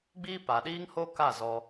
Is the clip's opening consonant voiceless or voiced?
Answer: voiced